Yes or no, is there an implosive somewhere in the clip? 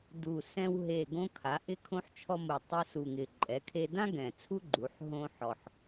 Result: no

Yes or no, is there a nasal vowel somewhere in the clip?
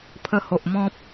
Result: yes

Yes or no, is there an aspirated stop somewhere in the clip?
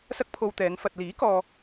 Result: yes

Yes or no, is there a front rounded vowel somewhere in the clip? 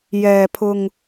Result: no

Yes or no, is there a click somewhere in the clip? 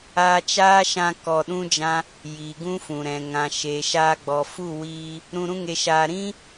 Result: no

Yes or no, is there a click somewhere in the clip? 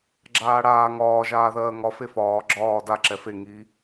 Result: yes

